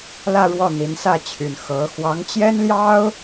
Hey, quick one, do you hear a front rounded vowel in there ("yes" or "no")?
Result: yes